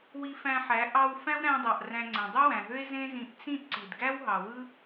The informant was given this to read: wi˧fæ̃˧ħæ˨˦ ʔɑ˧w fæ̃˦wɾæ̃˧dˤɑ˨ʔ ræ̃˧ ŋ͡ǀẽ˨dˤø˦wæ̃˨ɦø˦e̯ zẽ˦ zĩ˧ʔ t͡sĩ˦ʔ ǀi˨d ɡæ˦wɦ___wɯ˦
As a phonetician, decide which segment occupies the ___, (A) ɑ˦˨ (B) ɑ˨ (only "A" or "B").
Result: B